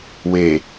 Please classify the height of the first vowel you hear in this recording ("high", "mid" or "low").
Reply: mid